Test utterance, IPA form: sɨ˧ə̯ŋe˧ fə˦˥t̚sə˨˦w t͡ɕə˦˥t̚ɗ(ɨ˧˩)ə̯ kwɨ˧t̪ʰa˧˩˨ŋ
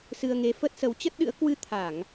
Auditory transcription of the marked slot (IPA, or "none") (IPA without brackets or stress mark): ɨ̰˧˥